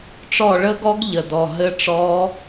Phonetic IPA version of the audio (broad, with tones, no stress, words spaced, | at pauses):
ʈ͡ʂɔ˦˨ɭə˦˥ɡɔ˦˥ɡ ʎə˦˨dɔ˦˨ ɦɘ˦˥ʈ͡ʂɔ˦˥